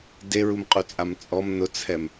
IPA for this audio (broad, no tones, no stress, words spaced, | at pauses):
deɹumqʼut͡sʼam t͡sʼɔm nʊt͡sʰɛm